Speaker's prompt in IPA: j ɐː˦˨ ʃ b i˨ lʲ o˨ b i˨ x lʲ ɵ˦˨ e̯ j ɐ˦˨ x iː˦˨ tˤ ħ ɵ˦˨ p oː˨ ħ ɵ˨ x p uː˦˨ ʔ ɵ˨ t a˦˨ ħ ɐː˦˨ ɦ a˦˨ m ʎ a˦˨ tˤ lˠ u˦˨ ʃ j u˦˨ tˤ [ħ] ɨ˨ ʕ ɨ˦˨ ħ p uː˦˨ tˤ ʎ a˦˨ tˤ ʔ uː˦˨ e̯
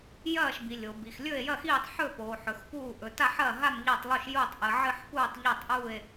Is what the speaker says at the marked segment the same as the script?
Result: no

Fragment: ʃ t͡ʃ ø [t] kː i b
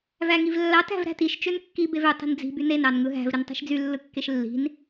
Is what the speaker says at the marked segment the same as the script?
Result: no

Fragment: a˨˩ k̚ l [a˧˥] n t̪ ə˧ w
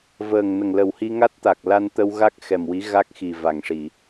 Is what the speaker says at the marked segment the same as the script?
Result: no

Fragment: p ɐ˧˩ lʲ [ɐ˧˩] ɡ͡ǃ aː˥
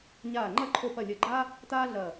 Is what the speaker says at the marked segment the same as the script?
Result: yes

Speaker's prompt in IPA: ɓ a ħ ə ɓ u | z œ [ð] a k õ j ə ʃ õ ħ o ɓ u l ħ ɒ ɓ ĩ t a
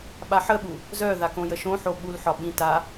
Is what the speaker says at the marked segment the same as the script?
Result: yes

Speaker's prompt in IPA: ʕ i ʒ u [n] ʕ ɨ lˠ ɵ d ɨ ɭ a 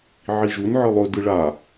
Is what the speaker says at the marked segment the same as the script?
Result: yes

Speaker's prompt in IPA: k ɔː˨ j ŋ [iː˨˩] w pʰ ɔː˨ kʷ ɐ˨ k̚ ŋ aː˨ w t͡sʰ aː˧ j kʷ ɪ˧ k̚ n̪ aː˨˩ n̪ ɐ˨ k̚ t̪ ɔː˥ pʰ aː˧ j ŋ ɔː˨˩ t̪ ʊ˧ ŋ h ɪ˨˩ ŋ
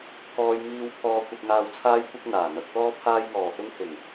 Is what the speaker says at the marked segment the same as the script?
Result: no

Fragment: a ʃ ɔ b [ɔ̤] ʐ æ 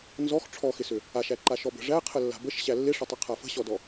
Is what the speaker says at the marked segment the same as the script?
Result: no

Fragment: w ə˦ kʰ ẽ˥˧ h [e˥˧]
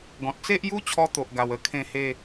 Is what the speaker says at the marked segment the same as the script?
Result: yes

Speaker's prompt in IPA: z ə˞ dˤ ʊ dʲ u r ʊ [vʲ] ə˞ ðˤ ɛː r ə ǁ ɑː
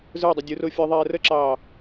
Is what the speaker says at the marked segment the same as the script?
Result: no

